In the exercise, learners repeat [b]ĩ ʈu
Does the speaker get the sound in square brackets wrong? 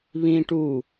yes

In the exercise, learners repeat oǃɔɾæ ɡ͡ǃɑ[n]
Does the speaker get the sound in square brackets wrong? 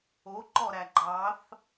yes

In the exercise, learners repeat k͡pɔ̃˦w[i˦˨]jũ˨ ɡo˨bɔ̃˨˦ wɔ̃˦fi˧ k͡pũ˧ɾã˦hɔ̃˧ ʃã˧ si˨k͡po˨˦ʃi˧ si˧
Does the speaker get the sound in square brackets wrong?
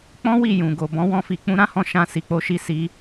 no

